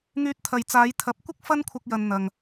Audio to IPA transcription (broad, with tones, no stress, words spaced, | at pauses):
ŋyː˧t̚t̪ʰɐ˨jt͡saː˨˧j t̪ʰɐ˨˥p̚kʷɪ˥k̚ fɐ˥nkʷʰɐ˧k̚jɐ˨n n̪ɐ˨ŋ